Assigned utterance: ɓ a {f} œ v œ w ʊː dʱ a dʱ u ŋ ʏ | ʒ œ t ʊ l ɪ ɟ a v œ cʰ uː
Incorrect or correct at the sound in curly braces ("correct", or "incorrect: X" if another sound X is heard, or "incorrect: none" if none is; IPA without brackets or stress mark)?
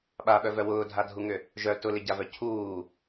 incorrect: ɓ